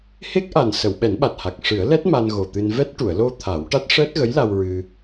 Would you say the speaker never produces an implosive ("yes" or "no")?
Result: no